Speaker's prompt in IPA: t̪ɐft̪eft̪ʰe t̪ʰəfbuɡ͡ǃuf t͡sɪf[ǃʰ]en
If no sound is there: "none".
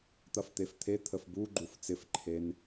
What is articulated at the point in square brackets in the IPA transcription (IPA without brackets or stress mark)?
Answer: ǃʰ